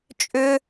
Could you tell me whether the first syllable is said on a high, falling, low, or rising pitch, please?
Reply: high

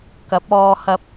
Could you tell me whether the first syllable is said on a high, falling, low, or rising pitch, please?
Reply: rising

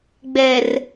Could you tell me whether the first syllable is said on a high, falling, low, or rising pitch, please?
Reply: low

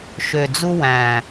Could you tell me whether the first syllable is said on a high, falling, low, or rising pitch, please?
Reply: low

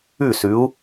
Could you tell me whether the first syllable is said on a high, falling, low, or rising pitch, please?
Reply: falling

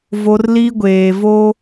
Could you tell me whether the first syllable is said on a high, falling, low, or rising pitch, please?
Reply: high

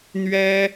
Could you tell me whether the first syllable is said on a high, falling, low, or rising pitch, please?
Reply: high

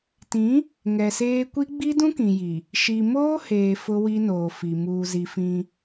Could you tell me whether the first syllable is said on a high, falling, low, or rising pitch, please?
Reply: rising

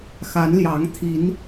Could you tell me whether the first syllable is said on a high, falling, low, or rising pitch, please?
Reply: rising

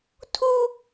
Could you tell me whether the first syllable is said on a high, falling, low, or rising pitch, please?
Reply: high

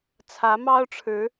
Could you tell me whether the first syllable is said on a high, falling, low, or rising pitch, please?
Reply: rising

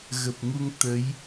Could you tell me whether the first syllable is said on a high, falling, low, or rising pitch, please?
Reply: low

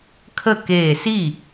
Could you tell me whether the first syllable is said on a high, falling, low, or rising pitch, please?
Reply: falling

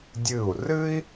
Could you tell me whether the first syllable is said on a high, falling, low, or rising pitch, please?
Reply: falling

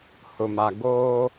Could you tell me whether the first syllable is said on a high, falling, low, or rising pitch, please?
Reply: low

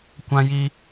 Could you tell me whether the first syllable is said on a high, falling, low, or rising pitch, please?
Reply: high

